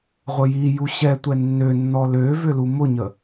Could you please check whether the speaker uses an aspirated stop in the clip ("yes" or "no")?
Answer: no